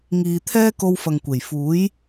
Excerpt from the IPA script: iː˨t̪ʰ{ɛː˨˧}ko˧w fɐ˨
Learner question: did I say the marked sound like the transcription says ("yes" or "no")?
no